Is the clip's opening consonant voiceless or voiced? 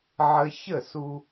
voiced